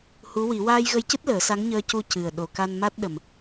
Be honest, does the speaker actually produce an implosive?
yes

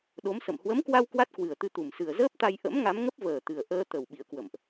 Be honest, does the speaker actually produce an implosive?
yes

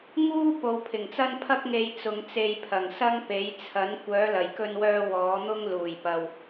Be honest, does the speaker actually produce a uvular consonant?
no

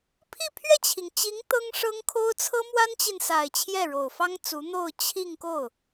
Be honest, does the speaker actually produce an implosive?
no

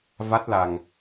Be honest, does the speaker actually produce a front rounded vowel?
no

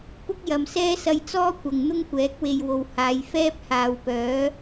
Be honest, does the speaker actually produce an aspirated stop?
no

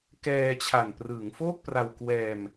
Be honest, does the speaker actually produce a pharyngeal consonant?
no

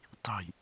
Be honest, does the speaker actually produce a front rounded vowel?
no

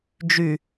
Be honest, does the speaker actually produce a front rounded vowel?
yes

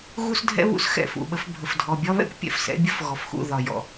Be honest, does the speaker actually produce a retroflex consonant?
no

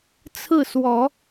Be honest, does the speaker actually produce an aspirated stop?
yes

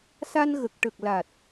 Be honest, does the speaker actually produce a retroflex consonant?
yes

